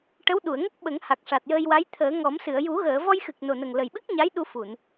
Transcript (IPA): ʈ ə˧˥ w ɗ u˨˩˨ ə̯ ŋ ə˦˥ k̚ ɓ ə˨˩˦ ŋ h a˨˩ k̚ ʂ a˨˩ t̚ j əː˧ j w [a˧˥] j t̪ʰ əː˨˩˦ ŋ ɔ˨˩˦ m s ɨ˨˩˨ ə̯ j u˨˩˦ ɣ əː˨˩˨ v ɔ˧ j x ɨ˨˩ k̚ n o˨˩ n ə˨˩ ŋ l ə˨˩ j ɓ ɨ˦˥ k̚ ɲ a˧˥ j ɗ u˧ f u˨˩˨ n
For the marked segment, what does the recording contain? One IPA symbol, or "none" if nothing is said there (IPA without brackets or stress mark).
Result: a˧˥